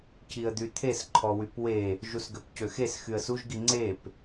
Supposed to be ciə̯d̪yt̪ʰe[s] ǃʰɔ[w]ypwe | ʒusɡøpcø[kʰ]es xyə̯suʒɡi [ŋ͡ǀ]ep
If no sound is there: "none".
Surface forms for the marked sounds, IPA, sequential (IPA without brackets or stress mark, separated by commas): s, w, x, ŋ͡ǀ